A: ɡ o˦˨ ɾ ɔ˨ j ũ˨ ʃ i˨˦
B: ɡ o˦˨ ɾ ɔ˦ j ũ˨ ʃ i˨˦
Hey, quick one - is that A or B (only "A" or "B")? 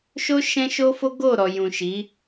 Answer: A